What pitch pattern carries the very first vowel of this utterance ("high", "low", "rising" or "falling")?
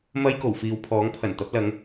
high